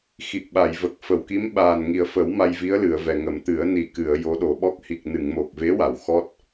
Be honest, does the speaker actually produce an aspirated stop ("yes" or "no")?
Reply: no